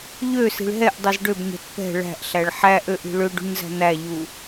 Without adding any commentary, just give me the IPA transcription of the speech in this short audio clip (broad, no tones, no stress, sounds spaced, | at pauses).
ʎ ø s i̤ ɭ ɦ ɛ ʔ dˤ i z ɖ ø b ɲ ɛ̤ t p ɛ̤ ɭ æ̤ ʔ ɬ æ ɭ ħ æ ʔ ø ʔ i̤ ɭ ø ɖ ṳ ɲ z æ̤ n̪ æ ʎ u